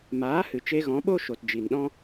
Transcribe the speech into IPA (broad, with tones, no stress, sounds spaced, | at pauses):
m aː˨˦ h ɨ˨ t͡ʃ e˧ ɣ ɔ̃˨˦ ɓ o˦ ʃ o˨ t d͡ʒ i˨ n ɗ ɔ̃˦